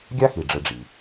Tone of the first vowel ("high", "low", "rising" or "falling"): high